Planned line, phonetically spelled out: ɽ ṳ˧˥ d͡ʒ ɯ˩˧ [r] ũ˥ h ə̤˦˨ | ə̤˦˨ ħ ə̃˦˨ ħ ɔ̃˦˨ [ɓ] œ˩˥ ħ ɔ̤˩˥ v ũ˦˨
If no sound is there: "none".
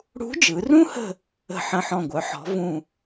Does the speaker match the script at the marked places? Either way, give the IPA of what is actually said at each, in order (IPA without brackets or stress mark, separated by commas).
r, ɡʷ